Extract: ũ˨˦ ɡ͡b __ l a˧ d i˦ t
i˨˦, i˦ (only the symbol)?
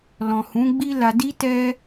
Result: i˦